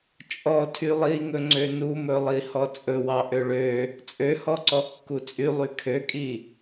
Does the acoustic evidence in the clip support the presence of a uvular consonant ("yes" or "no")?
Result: no